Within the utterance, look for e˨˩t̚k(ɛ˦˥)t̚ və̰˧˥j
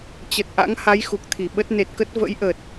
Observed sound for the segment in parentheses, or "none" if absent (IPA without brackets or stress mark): ə˦˥